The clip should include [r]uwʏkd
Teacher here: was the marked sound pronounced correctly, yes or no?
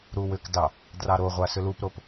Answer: no